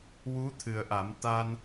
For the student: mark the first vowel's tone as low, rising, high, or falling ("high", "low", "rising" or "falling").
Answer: rising